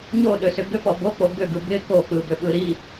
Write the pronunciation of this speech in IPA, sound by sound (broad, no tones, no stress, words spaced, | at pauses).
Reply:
ɲoɗøsʏ ɡʏpɔ bok͡po ɡʏɡɯ bɪ kok͡pɯbʏɓɯ ɾi